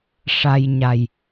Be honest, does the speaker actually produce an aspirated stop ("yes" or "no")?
no